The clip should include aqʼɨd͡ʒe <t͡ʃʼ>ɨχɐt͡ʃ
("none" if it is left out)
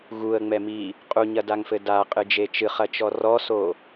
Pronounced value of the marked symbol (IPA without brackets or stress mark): t͡ʃ